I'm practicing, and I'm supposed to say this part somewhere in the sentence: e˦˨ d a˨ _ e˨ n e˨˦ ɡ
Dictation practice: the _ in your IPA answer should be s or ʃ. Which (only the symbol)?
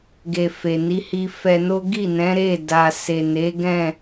s